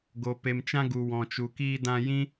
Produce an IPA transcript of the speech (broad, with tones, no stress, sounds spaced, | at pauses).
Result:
ɡ o˨ p e˨ m t͡ʃ ã˧ ɡ u˨ w ɔ̃˨ t͡ʃ u˨ k iː˧ d ã˧ j ĩ˦